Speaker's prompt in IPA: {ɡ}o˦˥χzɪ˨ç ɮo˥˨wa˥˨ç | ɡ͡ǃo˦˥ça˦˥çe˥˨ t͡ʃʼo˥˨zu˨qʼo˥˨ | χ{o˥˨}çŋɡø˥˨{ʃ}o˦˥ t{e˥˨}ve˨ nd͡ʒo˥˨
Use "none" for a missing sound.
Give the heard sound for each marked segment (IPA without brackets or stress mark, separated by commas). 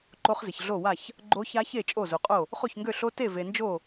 ǃ, o˥˨, ɬ, e˥˨